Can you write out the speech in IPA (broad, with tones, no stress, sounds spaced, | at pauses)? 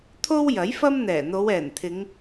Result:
t̪ʰ o˥ w j ɐ˨˥ j f ɐ˥ m n̪ ɛː˨˩ n̪ o˨˧ w ɛː˨˩ n t̪ʰ ɪ˨˧ ŋ